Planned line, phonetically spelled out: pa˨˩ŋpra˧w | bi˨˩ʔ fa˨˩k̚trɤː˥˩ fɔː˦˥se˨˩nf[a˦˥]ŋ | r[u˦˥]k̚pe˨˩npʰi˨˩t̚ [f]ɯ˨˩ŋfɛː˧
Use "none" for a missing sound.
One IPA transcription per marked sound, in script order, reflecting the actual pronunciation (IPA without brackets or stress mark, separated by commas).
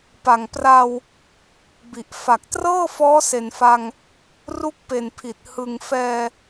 a˧, u˦˥, h